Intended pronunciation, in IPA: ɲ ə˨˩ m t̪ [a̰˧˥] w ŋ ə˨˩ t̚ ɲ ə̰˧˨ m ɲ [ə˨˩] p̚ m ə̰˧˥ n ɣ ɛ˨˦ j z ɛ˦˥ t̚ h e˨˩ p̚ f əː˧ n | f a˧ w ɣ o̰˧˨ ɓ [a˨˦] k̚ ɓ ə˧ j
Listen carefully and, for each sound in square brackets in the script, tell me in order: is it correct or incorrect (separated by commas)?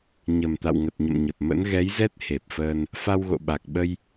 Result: incorrect, correct, incorrect